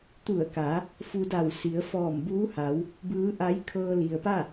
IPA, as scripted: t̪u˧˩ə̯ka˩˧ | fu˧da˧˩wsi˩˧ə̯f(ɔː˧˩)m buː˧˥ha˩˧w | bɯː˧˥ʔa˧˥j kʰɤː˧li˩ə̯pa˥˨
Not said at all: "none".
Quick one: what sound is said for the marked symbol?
ɔː˧˩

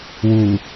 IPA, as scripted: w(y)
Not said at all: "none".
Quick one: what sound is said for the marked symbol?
u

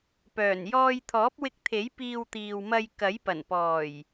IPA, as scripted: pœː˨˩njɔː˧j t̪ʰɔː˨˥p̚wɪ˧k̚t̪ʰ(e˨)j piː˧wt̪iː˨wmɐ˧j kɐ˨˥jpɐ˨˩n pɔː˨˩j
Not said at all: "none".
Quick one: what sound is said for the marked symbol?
e˨˥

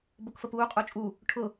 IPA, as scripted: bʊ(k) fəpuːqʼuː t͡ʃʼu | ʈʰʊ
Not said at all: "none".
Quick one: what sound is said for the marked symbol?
k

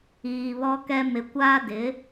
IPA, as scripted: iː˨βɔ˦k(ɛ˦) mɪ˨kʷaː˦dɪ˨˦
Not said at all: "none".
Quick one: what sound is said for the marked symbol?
ɛ˦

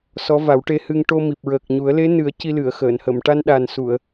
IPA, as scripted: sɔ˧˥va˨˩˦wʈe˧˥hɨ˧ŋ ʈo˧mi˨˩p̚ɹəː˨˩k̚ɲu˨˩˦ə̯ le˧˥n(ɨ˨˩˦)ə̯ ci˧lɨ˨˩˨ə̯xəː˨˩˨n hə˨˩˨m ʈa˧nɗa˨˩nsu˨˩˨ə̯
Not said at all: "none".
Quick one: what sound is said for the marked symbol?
ɨ˨˩˦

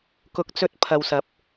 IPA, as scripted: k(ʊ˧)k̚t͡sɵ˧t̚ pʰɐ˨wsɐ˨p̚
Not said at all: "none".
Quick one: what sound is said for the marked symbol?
ʊ˧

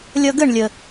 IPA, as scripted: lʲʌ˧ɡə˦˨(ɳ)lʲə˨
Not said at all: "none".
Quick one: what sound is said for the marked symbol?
ɳ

